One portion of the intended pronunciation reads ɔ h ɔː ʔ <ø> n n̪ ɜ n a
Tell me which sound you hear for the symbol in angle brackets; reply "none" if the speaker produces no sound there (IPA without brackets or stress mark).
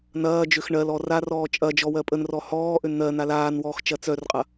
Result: ø